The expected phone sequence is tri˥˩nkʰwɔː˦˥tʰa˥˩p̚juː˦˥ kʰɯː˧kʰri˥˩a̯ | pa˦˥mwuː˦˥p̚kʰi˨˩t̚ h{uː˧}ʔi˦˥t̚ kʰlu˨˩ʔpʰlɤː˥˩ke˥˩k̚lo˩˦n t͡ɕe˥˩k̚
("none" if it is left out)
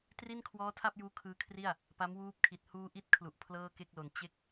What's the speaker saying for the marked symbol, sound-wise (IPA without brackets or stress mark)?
uː˧